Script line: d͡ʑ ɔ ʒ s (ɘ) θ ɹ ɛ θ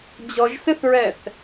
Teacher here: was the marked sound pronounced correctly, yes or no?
yes